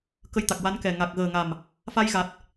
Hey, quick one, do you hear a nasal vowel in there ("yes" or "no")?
no